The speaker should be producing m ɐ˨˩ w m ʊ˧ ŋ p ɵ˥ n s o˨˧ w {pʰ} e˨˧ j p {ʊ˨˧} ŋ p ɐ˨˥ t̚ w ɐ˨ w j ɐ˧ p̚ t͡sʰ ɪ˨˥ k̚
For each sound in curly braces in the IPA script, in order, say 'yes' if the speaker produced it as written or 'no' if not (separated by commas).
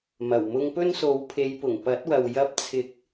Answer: yes, no